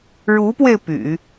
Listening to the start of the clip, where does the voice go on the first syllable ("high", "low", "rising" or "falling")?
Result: rising